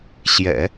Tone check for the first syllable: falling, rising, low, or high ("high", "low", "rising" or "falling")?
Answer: low